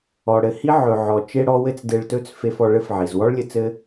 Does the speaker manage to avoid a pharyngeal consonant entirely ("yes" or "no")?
no